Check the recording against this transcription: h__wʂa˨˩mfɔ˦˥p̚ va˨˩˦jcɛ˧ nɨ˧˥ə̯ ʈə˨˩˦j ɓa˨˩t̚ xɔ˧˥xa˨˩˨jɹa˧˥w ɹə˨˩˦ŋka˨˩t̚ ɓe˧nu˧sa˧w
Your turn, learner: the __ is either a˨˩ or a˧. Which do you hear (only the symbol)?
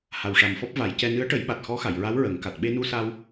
a˨˩